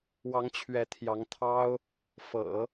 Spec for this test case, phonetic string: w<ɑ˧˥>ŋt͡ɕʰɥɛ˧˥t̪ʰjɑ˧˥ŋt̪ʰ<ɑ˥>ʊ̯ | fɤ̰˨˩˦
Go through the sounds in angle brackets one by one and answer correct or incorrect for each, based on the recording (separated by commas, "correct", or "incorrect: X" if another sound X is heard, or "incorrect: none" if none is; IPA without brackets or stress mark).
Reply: correct, correct